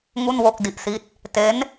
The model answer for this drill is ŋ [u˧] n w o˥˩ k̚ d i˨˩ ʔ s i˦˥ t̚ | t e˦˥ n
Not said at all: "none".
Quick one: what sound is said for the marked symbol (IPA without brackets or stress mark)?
u˥˩